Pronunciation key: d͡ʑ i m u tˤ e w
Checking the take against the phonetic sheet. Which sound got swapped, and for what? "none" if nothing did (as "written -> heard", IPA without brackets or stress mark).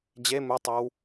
i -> e